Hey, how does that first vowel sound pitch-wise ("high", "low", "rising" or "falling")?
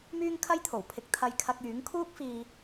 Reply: high